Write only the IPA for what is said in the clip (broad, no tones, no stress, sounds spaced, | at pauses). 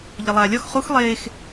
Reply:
ʎ ə lˠ aː lʲ ɒ x χ u x lˠ eː x